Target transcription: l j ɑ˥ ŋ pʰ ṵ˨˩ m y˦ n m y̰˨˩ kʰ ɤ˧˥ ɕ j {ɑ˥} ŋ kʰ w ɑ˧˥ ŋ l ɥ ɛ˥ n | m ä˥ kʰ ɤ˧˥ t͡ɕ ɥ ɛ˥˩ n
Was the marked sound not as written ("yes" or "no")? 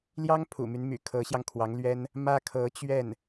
yes